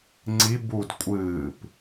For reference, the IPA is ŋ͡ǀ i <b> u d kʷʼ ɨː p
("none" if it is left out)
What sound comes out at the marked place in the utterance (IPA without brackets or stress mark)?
b